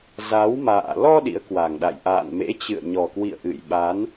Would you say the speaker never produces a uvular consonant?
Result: yes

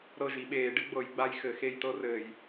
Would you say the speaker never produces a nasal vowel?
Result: yes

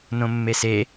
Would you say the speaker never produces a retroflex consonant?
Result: yes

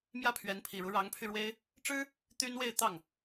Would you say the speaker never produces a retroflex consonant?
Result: no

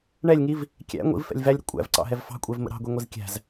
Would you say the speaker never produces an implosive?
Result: yes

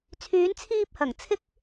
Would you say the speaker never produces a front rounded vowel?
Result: no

